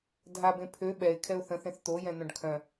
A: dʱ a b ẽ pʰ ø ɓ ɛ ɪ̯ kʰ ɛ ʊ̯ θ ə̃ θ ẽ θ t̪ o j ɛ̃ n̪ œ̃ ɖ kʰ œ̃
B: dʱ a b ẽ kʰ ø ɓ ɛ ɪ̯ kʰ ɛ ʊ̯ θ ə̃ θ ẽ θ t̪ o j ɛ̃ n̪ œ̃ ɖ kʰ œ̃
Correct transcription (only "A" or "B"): A